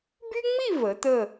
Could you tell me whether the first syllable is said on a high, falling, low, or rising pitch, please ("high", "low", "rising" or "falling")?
high